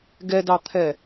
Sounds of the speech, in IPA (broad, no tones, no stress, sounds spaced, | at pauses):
ɡ ɛ d ɑ t̪ʰ ɛ